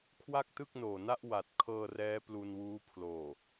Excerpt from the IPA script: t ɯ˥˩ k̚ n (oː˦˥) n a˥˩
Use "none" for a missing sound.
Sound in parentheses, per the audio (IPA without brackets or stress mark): oː˨˩